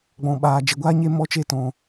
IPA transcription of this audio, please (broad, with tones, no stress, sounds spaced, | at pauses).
ɡ͡b ɔ̃˦ ɓ aː˦ d͡ʒ e˧ ɡʷ aː˦ ɲ e˦ m ɔ˦ t͡ʃ e˦ t ɔ̃˧